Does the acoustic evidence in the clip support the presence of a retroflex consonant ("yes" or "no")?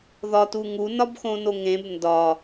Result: no